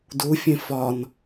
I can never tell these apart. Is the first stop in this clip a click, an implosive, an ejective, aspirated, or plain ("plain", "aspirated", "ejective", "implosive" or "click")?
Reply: plain